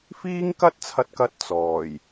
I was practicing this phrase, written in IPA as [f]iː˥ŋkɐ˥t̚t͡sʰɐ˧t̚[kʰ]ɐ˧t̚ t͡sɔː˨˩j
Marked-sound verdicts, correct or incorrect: correct, incorrect

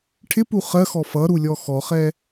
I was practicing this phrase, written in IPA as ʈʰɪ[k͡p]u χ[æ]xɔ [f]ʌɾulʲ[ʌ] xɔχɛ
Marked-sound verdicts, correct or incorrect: incorrect, incorrect, correct, incorrect

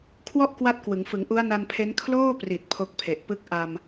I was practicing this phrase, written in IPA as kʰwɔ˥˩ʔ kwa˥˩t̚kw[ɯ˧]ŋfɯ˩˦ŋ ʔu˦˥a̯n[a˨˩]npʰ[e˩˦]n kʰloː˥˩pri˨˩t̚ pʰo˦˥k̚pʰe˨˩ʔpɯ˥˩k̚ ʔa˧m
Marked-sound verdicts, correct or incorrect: incorrect, incorrect, incorrect

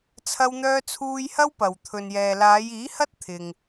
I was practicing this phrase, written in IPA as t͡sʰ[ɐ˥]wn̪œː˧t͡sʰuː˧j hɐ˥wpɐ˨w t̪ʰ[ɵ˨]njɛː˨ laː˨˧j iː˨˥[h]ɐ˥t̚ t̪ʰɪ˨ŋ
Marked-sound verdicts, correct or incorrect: incorrect, correct, correct

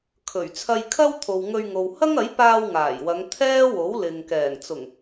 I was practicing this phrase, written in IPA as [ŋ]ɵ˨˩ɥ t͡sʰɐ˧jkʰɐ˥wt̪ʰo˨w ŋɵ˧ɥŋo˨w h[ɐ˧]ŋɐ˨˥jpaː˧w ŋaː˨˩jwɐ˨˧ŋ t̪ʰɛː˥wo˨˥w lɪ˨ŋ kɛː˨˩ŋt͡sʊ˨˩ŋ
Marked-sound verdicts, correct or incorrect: incorrect, incorrect

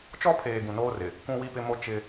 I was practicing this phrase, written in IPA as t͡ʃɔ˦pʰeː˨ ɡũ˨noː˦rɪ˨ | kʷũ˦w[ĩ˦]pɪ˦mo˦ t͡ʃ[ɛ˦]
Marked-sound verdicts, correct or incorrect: incorrect, incorrect

